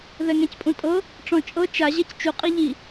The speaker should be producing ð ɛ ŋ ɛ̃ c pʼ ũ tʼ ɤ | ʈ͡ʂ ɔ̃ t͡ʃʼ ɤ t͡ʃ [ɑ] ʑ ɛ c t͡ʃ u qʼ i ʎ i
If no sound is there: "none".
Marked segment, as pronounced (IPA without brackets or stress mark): a